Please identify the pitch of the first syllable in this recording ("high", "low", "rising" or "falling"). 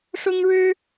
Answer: high